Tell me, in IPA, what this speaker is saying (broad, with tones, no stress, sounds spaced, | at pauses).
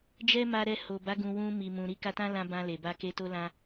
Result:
d͡ʒ ɛ˦ m a˧ ɾ ɛ˧ h o˨ b a˨˦ ɡ ũ˧ w ũ˧ m i˨ m ũ˨ ɾ i˧ k a˧ t ã˦ l ã˧ b ã˧ l e˨ b a˧ k e˧ t o˦ l ã˦